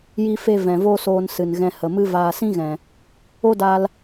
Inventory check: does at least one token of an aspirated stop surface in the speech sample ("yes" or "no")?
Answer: no